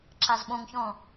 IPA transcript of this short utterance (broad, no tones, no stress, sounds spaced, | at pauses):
ǁ a z ɓ õ ŋ ç ɔ̃